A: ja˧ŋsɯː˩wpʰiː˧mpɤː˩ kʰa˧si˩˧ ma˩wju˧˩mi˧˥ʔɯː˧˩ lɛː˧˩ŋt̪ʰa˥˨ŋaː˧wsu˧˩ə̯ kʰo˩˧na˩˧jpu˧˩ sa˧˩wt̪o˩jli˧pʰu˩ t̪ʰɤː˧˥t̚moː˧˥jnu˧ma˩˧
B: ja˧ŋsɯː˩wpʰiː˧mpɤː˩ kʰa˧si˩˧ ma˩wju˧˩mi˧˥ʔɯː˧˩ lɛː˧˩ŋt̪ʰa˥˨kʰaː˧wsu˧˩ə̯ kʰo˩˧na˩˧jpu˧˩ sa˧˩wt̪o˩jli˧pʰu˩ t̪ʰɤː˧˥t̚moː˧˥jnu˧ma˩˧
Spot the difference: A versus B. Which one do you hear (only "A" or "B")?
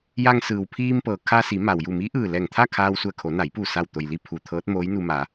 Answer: B